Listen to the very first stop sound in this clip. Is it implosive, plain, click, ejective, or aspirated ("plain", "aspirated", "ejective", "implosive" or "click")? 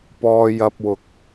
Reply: plain